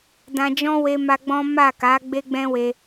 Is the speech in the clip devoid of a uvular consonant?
yes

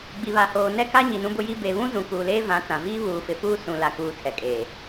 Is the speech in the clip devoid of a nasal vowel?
no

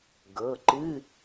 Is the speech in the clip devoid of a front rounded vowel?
yes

